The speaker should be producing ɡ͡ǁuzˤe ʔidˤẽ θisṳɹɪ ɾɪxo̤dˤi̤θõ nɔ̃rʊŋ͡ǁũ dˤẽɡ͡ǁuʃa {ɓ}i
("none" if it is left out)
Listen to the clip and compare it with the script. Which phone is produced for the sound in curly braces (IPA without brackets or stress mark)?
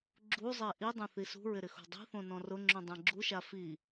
f